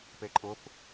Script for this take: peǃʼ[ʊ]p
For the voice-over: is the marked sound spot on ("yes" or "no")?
yes